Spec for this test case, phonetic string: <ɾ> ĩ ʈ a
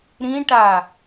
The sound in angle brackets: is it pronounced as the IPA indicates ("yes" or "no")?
yes